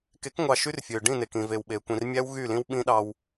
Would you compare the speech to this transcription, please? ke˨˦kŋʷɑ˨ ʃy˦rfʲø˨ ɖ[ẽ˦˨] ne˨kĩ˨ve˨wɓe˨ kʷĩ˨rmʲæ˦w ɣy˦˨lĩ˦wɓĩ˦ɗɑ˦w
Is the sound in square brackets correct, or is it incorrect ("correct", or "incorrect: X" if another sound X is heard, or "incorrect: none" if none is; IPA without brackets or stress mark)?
incorrect: ĩ˦˨